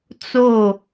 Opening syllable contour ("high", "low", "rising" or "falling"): falling